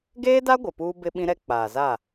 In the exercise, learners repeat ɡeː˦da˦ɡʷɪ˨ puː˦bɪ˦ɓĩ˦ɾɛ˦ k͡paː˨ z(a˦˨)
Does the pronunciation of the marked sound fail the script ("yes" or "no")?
no